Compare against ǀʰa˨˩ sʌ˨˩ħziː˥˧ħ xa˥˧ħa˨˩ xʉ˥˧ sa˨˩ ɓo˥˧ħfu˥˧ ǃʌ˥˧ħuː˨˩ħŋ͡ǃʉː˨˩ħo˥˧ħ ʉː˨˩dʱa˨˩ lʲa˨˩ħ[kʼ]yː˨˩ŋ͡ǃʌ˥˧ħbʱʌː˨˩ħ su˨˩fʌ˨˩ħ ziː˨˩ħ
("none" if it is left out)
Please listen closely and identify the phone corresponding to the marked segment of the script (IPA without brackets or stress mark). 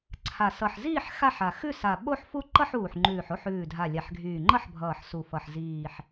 ɡʱ